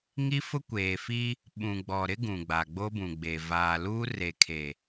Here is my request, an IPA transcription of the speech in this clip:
ŋ i˦ f ʊ˦ kʷ eː˨ f i˦ | ɓ ũ˨ ɡ͡b ɔ˨ ɾ ɪ˦ ɡ ũ˨ ɡ͡b a˨ ɡ͡b o˦ b ũ˨ ɡ͡b e˨ v aː˨ l uː˦ r e˨ kʰ e˨

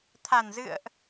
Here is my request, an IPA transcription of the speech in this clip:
t̪ʰ a˨˩ n z ɨ̰˧˨ ə̯ ʔ

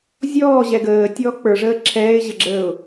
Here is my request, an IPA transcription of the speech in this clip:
zʲ ɔː ʑ ɛ ɡ əː tʲ ɔː k͡p ə˞ ʐ əː ǁʰ ɛː ɪ̯ ʑ ə ɡ͡ǁ əː ʊ̯

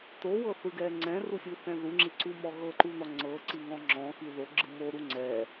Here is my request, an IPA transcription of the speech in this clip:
t o w ɤ θ ɯ ɡ ɛ ŋ͡ǀ ɛ̃ r u sʲ u θ ɛ̃ ð u ŋ͡ǁ i ǀ u m ɔ ɣ ɤ ǃ u n ɔ ŋ͡ǀ ɤ ǀ i ŋ ɔ̃ ŋ͡ǁ ɔ̃ x i ð o ɡ͡ǁ ɯ m o ɾ u ŋ͡ǀ ɛ

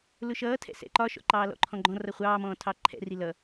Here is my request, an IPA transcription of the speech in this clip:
l ʊ ʃ ʌː tʰ ɛ̰ s ɛ̰ ǃ ɒ ʃ ɔ̰ ǃ ɑː l ɔ̰ ǃʰ ɔ̃ ɡ͡ǃ ɔ̃ r ʌ χʷ ɑː m ɔ̃ː tʰ ɑ ǃʰ ɛ̰ r i l ʌ

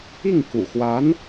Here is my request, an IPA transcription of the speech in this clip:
i˥˩ ŋ k ṵ˨˩ x w a˧˥ n

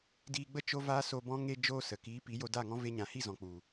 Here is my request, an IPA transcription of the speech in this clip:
d iː˧ ɡ͡b ə˦ t͡ʃ o˦ v aː˦ s o˧ b ɔ̃˦ ŋ e˧ d͡ʒ oː˧ s ə˨ k iː˨˦ p i˨˦ j o˧ d aː˦˨ ŋ ɔ̃˦ v e˧ ɲ ã˨ h i˦˨ z ɔ̃˨ k͡p u˨

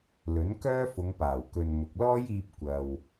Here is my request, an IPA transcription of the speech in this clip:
l ɵ˨˥ n k œː˥ f ʊ˨˧ ŋ p aː˨˩ w k ɵ˨ n m ʊ˨ k̚ l ɔː˥ j iː˧ p̚ kʷ ɐ˨ w

